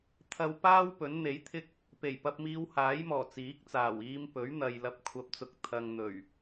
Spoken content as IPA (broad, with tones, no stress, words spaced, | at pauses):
t̪ʰɐ˨w paː˥w pɵ˨˥nn̪e˨˥jt̪ʰɪ˥k̚ | pe˨˩j pɐ˧p̚miː˧whaː˨˥jmɔː˨˩ t͡siː˨˥k̚t͡saː˨˩w iː˧mpɵ˨˥ɥn̪ɐ˨j lɐ˧p̚kʷʰɐ˧p̚t͡sʊ˧k̚ t̪ʰɐ˧ŋn̪ɵ˨˩ɥ